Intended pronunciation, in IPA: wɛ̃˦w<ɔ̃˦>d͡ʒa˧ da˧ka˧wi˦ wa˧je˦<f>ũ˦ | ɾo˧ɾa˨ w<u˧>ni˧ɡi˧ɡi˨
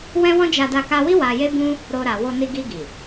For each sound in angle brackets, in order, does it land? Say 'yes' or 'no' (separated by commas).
yes, no, no